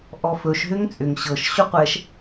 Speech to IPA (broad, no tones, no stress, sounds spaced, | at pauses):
ʔ ɔ f ɵ ʃ ɦ ʏ ŋ t͡sʼ ʏ ŋ ɕ ɤ ʃ ɕ ɵ qʷ ɛ ʃ